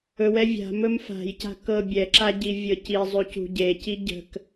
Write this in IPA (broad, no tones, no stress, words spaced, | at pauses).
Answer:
ɵwɛ vʲa̤mɵm fa̤jca̤ kɤbʲɛǁa ɟivʲɤci zˤʉcṳɟe ciɟə̤k